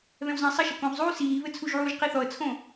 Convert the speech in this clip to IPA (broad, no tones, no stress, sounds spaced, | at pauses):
β ɛ̃ w z ɛ̃ ə̯ sˤ ɐ ʃ ɐ k õ ʁ zˤ uː s iː β ɘ t͡sʰ u ʒ ʕ uː ʒ q i θ ɔ ə̯ t͡sʰ õ